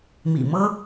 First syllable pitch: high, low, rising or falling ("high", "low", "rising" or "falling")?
low